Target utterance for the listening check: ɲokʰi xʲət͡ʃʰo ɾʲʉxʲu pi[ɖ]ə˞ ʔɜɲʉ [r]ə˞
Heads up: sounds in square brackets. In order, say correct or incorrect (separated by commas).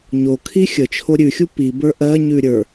incorrect, incorrect